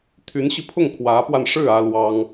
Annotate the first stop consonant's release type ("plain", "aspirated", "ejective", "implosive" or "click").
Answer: aspirated